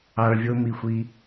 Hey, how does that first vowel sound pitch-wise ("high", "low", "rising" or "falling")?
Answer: low